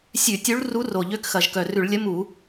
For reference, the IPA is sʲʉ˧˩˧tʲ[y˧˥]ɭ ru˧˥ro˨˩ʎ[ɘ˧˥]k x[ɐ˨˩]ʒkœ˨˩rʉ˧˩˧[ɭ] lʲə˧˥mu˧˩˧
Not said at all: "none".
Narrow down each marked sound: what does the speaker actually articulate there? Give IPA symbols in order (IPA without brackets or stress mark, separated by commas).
u˧˥, ø˧˥, ɐ˨˩, ɭ